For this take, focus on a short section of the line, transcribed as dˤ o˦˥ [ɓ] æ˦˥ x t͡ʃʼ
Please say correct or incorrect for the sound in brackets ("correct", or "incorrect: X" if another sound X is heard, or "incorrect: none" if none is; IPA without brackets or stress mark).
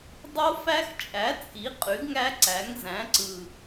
incorrect: f